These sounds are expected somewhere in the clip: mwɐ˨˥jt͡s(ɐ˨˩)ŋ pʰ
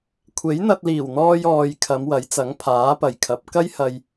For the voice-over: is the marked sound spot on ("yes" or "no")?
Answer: no